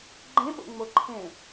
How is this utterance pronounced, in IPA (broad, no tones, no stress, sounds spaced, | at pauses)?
ɡ͡ǃ ẽ ɓ o̰ ŋ͡m o ǃʰ ẽ